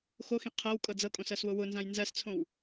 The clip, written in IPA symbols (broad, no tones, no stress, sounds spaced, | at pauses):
x o x ĩ qʰ ɤ w kʼ ɤ d͡z ɤ kʼ õ s ɜ s w ʊ w ʊ n z ã j n z ɜ s t͡sʰ õ w